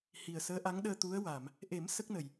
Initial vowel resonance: oral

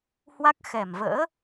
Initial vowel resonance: oral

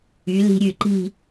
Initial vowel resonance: oral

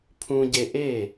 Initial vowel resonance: nasal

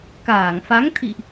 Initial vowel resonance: oral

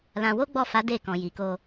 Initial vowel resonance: nasal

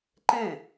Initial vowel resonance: nasal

